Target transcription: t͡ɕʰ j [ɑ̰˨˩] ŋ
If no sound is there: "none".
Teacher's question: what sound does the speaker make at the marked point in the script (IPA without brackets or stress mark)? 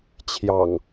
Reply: ɑ̰˨˩